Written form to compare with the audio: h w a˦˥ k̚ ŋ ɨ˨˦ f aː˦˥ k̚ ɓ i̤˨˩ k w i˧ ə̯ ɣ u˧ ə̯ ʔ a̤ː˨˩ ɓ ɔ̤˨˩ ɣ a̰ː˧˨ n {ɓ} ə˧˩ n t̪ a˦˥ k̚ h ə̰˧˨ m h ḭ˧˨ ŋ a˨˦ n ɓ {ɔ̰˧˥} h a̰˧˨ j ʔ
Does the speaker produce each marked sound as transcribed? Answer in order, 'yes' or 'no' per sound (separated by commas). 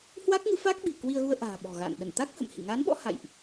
no, yes